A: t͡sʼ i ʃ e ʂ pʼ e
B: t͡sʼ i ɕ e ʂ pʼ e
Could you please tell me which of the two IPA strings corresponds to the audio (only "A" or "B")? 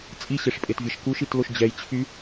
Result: B